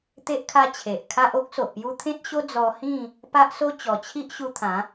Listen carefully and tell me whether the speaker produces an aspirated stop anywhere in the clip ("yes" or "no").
yes